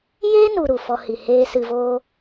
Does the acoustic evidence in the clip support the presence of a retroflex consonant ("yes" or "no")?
no